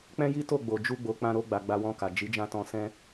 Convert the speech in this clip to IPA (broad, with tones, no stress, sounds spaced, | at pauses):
k͡p ɛ̃˦ j i˦ t o˦˨ ɡ͡b o˨ d͡ʒ u˧ ɡ͡b o˨ k͡p ã˧ ɾ o˧ ɡ͡b a˨ ɡ͡b a˧ w ɔ̃˧ k a˨ d͡ʒ i˨˦ d͡ʒ ã˦ t ɔ̃˧ s ɛ̃˦